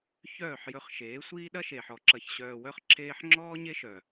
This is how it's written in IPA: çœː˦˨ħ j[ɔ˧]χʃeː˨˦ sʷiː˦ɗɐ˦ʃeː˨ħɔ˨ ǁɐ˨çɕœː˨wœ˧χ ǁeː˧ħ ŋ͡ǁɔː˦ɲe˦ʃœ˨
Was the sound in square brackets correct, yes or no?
no